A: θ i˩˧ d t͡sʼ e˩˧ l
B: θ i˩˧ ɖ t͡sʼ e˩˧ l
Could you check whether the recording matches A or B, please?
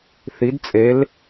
A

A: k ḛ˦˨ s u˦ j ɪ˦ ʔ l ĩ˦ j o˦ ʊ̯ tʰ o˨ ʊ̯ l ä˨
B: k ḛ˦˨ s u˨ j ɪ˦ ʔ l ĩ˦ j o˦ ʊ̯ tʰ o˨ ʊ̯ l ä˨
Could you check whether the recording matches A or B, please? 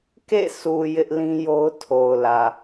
B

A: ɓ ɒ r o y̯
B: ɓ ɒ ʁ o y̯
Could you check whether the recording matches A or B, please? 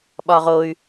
B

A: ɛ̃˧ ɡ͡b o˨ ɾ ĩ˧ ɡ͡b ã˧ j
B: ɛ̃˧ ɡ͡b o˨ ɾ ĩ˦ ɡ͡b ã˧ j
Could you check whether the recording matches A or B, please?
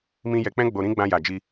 A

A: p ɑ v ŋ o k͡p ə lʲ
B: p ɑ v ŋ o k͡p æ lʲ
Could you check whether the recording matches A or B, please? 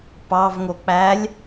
B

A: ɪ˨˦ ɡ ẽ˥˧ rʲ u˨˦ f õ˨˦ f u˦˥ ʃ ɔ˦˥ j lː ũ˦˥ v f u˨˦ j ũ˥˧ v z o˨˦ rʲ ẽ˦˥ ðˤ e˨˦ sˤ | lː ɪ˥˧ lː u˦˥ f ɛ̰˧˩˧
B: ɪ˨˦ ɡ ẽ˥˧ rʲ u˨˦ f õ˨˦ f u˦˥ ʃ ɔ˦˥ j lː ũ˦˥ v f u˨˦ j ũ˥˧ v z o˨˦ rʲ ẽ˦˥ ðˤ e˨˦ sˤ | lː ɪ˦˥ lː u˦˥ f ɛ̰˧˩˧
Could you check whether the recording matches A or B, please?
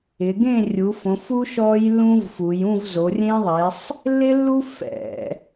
B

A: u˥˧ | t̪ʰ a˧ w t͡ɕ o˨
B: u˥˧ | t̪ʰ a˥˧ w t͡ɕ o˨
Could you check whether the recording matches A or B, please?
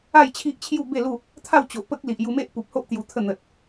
B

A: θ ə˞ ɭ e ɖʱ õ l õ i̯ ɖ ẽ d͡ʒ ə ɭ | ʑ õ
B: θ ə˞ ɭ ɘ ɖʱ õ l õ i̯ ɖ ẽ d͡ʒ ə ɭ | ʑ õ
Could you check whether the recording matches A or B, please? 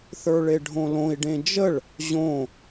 A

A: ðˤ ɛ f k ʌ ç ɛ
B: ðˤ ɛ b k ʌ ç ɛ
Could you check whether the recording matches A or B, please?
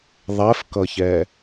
A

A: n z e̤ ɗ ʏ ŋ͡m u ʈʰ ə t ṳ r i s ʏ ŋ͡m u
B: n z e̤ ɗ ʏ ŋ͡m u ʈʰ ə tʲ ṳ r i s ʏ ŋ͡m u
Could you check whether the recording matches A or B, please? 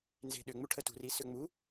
A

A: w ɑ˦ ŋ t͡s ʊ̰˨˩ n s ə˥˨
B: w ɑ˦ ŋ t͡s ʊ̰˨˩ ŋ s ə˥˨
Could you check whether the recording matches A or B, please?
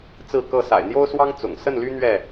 B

